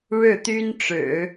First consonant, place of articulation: retroflex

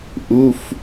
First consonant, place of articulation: glottal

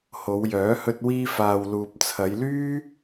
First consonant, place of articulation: glottal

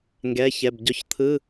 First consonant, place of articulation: velar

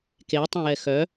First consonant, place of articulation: velar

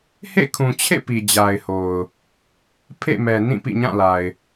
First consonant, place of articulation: glottal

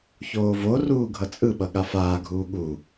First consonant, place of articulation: palatal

